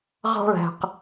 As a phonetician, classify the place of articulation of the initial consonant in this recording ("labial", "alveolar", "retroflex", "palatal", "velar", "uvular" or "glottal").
uvular